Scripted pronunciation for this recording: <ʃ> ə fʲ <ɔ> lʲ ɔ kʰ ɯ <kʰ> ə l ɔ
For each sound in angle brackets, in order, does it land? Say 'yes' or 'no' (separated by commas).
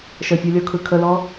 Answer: yes, yes, yes